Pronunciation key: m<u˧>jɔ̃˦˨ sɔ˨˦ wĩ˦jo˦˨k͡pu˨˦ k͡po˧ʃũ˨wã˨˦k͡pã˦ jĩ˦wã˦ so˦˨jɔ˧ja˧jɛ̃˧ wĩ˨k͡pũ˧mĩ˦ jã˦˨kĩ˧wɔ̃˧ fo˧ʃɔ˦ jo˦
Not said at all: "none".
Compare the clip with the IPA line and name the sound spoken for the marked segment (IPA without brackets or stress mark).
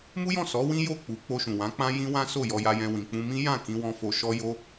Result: u˦